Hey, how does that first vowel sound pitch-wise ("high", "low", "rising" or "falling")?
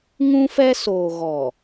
high